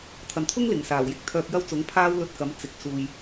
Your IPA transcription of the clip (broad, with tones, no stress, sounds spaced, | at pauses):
t̪ʰ ɐ˨ n t̪ʰ ʊ˥ ŋ l ɪ˨˩ ŋ s aː˨˩ w j ɪ˧ k̚ t̪ʰ œː˧ k̚ j ɐ˥ w t͡s ʊ˨˥ ŋ pʰ aː˥ w l ɵ˧ t̚ k ɐ˨˥ m t͡s ɪ˨ k̚ s uː˨ j